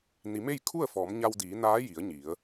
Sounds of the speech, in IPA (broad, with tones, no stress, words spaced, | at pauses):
ni˩˧me˥˨j kʰu˥˨ə̯fɔː˩˧mɲa˧wdiː˩˧ naː˧˥ji˩˧ə̯ɲi˩˧ə̯